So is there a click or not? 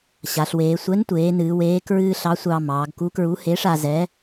no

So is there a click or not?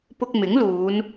no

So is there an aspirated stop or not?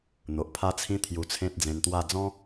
yes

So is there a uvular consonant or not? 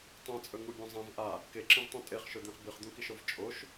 yes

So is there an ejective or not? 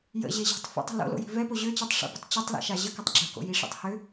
no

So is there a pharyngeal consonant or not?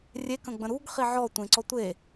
yes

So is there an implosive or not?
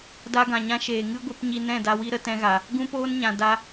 no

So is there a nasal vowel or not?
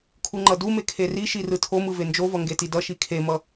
no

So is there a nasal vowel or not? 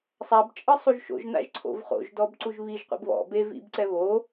no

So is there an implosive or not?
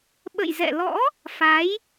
yes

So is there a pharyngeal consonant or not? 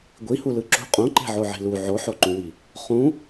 yes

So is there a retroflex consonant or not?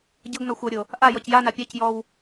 no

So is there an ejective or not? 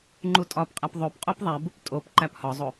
yes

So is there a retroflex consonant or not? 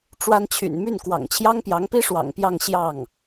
yes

